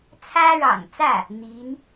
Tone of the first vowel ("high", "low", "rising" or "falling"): high